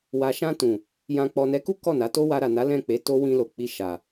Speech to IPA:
w a˨ ʃ ã˧ t ũ˨ | j ã˨ k͡p ɔ˨ n ɛ˨˦ k u˦ k ɔ˦˨ n a˨˦ t o˦ w a˧ ɾ a˨ n a˨˦ l ɛ̃˦˨ k͡p e˨˦ t o˦ w ĩ˧ l o˨ k͡p i˧ ʃ a˨

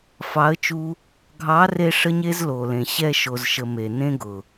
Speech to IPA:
f ɑ˨˦ ə̯ t͡ʃ u˧ | ɡʱ ɑ˨˦ r e˧ ʂ ə˦ ɲ e˦ z l o˨ l ẽ˨ ɕ ɛ˧ ʃ o˨ z ʃ ə˨ m e˨ n ẽ˦ ɡ ʊ˨

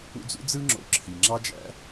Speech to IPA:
ṵ˦ d͡z ṵ˥ d͡z ɯ˥ ŋ͡ǁ o̰˨ ǁʰ i˩ ŋ͡ǁ ɑ˦ d͡ʒ æ̰˦

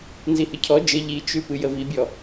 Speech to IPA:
n z i h ɨ cʰ ɔ d͡ʒ ə ʎ i t͡ʃ ʉ p ɨ j ə v i bʲ ɔ

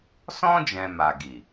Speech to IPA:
s ɔ̃˦ d͡ʒ ɛ̃˧ m a˨ ɡ i˨

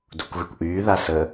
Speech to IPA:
d u kʷ ɣ y kʷ ʔ yː ð a s ə

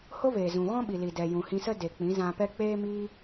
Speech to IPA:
h o˦ v eː˨ z ũ˨ ɣ ɔ̃˦ ɓ i˨ l i˨ d ɛ˨ j ũ˨ h ĩ˧ s ə˦ d e˨ k͡p ĩ˨˦ z ã˧ p ɛ˦ k͡p eː˦ m iː˦

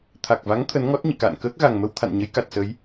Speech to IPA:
t̪ʰ a˨˩ k̚ v a˨˦ ŋ t̪ʰ ə˨˦ n ŋ ɔ˦˥ t̚ ɲ ḭ˧˨ k a̰ː˧˨ n k əː˦˥ k̚ ɣ a˨˩ ŋ m ə˧ w t̪ʰ a̰˧˨ n ɲ ə˨˦ j k a˨˩ t̚ s ə˨˦ j

